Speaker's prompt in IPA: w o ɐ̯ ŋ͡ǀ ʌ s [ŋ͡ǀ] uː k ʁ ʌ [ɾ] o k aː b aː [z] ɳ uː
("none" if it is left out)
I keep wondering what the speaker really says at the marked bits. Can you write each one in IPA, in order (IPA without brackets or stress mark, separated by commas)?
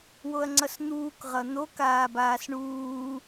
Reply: n̪, n̪, s